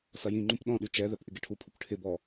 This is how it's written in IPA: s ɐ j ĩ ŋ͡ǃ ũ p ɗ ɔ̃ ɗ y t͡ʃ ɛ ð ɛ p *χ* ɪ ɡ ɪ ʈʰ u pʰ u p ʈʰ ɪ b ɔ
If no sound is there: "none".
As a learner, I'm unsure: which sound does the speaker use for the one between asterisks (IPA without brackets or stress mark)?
ʔ